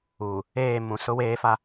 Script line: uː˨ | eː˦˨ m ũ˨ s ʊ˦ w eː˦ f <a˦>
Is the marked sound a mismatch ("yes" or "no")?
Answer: no